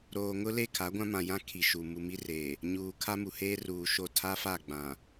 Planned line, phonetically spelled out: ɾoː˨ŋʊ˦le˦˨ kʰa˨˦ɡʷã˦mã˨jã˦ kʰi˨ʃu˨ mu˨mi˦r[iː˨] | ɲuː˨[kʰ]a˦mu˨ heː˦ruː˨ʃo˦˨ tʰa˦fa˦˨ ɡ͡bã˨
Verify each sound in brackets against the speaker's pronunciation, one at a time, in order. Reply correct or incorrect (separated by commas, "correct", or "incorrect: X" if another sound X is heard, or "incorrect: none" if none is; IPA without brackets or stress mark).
incorrect: eː˨, correct